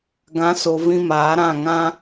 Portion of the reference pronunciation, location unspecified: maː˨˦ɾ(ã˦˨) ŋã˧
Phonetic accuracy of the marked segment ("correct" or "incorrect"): correct